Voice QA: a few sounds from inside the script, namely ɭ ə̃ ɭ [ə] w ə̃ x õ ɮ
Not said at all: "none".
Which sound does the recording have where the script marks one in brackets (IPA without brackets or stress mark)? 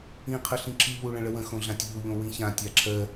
ə